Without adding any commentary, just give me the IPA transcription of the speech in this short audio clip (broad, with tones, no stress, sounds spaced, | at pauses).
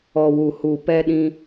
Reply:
ɔ˨ w u˨ h u˨ p ɛ˧ ɗ ĩ˧